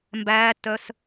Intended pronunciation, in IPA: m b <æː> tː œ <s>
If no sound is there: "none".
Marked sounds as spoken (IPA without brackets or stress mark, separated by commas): æː, s